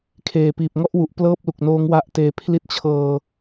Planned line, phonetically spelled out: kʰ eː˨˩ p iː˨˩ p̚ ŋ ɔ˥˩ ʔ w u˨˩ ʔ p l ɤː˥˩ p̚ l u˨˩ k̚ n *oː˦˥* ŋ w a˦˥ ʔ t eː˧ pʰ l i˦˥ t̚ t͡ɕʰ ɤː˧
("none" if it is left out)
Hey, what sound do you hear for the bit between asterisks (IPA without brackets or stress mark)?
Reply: oː˦˥